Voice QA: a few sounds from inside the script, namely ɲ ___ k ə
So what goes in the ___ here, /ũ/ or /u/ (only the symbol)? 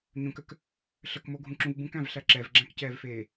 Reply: ũ